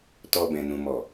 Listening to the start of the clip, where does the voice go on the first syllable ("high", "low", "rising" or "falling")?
low